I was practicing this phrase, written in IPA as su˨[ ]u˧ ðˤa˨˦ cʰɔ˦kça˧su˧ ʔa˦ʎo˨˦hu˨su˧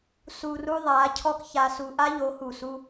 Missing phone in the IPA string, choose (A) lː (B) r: B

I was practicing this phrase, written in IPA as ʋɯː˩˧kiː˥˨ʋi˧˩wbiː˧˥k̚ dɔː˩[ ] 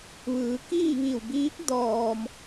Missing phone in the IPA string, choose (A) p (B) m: B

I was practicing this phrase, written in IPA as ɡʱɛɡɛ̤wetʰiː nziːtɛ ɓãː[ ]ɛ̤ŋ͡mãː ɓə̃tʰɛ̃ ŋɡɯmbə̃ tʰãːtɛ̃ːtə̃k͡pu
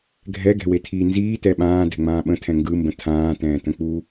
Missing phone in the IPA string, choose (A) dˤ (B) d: B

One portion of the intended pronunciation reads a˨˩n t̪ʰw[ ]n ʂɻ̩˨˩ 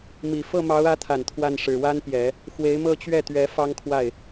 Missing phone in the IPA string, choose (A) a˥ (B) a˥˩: B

